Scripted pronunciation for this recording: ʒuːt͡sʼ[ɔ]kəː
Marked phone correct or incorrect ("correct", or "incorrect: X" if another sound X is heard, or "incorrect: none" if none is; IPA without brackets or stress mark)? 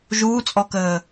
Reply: correct